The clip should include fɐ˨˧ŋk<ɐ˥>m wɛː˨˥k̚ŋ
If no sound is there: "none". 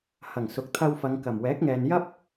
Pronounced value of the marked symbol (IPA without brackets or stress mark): ɐ˨˩